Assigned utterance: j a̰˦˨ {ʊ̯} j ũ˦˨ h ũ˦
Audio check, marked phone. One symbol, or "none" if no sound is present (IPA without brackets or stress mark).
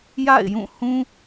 ɪ̯